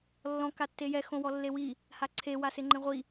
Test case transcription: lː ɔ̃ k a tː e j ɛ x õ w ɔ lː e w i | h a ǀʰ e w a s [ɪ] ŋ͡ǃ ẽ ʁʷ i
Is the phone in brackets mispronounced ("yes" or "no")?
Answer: no